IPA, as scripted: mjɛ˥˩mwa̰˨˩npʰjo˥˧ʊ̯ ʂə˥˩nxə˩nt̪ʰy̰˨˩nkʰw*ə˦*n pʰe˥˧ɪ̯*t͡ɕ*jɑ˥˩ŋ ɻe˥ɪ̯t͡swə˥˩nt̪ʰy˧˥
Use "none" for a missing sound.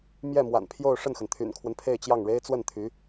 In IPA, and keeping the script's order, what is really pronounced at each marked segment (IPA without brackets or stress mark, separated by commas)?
ə˦, t͡ɕ